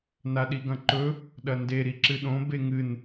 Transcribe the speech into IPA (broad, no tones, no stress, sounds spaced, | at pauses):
n a ɗ i ɡ ɐ̃ ǃ ɵ | ɗ ɐ n d e ɾ i ǁ ɨ ɗ õ b e ŋ ɨ n